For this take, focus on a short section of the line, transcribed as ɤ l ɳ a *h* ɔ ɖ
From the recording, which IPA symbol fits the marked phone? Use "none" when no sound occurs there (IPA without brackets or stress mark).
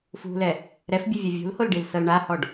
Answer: h